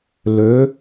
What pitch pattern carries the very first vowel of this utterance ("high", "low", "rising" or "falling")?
rising